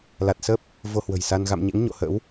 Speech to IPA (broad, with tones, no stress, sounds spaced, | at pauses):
l a˨˩ t̚ s ə˦˥ p̚ | v o˧ h w ə̤˨˩ j s a˧ n ɣ a̰˧˨ m ɲ ḛ˧˥ ŋ ɲ o̰˧˨ h ə̰˧˥ w